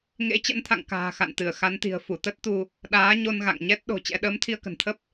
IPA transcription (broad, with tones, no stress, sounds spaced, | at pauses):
ŋ ḛ˧˥ t͡ɕ ə̰˧˥ n t̪ʰ a̰˧˨ ŋ k a̤ː˨˩ x a̰˧˨ n t̪ ɨ˧˩ ə̯ x a˨˦ n t̪ i̤˨˩ ə̯ f u˧˩ t̪ ə˦˥ t̚ t̪ u˧ | ɗ aː˨˦ ɲ o˧ n ɣ a̰˧˨ ŋ ɲ ɛ˦˥ t̚ ɗ o̤˨˩ t͡ɕ ɛ̰˧˥ ɗ əː˨˦ m t̪ʰ i˧ ə̯ k ə̤˨˩ n t̪ʰ ə˦˥ p̚